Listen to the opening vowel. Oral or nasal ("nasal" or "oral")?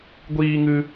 oral